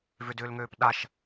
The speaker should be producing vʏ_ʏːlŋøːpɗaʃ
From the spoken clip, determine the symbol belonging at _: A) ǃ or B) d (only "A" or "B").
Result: B